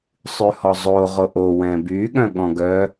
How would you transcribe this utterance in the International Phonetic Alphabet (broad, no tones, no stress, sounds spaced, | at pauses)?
sˤ ʉ h ɔ zˤ o ʁ o ʔ o w ɛ̃ b y ɠ œ̃ ɠ ɔ̃ ɡ œ